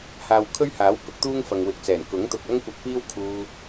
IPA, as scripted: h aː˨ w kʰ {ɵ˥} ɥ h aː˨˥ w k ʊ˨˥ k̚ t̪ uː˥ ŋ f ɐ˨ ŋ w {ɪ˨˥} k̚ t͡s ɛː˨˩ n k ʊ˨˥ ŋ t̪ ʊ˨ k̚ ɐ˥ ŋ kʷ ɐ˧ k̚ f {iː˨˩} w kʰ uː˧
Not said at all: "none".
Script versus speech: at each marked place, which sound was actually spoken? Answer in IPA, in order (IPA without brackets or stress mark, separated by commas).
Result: ɵ˥, ɪ˨˥, iː˥